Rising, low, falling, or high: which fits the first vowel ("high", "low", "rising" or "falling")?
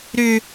high